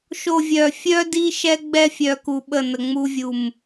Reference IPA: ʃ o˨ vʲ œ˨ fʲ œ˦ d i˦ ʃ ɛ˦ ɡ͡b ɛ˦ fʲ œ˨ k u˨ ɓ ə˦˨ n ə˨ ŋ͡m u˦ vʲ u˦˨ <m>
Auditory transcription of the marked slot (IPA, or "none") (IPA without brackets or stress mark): m